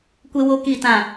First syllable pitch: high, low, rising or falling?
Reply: high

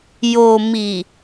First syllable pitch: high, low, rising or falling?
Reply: low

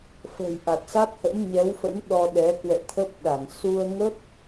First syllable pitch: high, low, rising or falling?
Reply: low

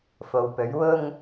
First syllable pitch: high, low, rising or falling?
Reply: low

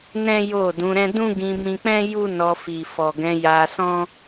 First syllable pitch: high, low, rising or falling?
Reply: high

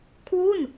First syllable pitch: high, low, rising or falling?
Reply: falling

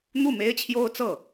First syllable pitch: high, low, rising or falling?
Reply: falling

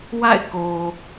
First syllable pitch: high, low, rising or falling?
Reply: falling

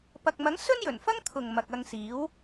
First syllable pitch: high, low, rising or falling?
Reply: low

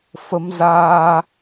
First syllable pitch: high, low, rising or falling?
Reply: rising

